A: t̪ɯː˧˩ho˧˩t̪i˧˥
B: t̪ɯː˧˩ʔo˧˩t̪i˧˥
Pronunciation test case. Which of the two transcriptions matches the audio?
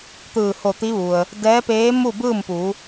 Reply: A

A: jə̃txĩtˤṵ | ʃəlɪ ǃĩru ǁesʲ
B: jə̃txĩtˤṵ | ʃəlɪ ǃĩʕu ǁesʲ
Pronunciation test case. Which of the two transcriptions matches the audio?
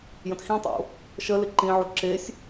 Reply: B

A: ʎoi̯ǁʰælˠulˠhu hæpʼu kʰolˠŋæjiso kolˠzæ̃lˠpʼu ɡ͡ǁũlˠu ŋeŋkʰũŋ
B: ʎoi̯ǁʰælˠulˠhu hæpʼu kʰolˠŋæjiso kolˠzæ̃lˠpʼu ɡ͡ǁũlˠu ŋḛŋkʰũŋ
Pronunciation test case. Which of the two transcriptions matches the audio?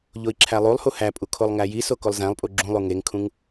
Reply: A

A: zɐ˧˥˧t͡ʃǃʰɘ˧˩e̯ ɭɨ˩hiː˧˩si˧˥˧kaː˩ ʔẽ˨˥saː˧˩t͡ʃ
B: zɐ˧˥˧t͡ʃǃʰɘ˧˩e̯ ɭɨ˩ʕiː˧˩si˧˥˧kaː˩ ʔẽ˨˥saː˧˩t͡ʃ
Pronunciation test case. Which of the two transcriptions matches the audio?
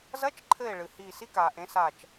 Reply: A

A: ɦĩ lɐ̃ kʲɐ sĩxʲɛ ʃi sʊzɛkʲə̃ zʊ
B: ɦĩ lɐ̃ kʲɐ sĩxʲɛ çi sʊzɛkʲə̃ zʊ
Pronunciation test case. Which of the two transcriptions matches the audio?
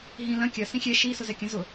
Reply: A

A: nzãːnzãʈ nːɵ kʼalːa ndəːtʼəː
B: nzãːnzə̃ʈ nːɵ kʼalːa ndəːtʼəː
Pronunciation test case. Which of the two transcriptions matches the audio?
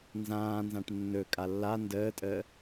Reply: A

